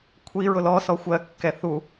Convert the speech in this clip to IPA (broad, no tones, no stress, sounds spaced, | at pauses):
kʷʰ i ɹ ʊ l ɔ s ɔ xʷ ɜ kː ɛ θ u